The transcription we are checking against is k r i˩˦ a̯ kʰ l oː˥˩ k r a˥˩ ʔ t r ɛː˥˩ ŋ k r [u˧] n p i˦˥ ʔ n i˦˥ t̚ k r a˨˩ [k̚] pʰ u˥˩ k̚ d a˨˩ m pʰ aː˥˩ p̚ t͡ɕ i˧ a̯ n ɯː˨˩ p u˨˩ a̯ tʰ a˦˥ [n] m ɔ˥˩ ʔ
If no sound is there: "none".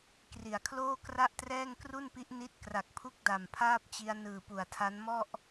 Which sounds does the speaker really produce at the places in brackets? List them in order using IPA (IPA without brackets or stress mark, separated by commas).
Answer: u˥˩, k̚, n